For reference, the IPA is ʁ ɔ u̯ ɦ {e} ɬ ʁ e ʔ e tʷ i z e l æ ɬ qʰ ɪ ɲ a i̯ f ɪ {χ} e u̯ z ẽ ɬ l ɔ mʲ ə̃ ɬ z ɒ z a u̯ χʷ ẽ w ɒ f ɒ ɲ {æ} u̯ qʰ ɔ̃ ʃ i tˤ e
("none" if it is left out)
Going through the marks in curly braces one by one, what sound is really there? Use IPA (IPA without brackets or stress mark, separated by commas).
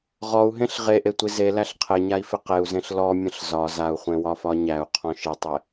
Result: ẽ, q, æ